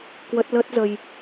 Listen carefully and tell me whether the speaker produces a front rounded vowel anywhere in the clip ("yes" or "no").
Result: no